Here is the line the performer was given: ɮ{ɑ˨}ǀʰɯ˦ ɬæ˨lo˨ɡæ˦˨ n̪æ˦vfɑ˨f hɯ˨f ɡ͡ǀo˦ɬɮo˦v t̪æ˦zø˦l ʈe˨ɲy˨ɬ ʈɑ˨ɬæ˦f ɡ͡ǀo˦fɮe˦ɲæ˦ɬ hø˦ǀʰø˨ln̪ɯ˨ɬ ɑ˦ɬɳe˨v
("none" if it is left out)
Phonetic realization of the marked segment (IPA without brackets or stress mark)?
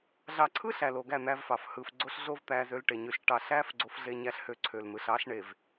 ɑ˨